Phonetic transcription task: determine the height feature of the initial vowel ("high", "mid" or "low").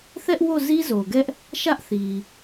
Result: mid